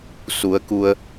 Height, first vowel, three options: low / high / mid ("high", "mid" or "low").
high